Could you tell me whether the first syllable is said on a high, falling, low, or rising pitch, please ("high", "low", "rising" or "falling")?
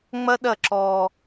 high